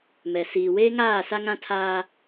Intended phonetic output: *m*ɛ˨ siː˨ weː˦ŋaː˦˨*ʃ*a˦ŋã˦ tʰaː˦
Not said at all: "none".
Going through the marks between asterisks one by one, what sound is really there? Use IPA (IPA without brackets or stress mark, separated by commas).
m, s